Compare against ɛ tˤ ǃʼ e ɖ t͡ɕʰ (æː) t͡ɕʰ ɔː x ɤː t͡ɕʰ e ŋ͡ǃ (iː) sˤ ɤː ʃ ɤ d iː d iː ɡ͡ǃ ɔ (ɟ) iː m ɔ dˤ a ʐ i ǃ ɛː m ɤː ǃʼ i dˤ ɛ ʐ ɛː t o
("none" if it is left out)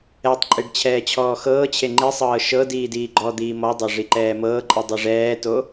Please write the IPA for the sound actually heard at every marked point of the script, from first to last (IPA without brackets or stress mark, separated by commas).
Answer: ɛː, i, d̪